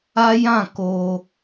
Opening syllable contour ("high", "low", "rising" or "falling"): high